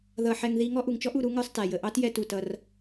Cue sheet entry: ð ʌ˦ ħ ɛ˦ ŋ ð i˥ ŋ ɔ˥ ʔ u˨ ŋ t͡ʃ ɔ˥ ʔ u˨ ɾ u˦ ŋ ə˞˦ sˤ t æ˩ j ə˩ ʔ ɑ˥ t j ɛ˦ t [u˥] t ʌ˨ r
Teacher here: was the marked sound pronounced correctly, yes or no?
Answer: no